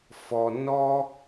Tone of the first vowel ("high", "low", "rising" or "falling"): low